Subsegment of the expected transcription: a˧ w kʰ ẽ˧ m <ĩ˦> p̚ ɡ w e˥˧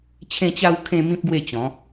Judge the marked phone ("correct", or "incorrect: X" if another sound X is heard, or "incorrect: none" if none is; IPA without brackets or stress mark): correct